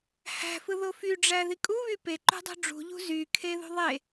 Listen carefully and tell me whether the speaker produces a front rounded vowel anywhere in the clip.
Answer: yes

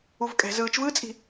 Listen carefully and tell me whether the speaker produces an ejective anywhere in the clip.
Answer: yes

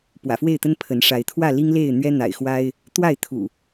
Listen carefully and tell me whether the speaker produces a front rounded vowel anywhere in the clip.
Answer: no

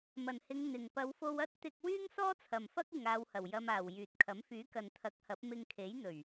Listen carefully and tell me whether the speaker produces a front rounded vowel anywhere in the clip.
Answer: yes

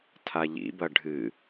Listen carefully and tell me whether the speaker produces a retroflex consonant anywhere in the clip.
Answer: yes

